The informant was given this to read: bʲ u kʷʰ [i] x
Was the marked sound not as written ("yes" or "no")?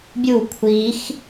no